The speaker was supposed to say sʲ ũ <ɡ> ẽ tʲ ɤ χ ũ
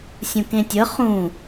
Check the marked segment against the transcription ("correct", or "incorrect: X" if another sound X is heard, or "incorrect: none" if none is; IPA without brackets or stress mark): incorrect: k